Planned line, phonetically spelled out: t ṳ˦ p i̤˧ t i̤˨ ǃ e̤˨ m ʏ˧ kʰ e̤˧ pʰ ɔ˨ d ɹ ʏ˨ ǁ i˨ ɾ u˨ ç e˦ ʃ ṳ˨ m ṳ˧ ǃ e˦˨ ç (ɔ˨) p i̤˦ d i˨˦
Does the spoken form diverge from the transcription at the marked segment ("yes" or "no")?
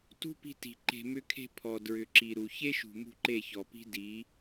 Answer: no